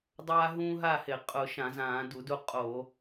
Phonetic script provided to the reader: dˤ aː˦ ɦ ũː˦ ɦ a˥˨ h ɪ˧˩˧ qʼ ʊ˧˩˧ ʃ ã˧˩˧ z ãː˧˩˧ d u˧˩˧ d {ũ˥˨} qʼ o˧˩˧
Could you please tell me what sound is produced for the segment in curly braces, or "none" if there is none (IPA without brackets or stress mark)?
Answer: u˥˨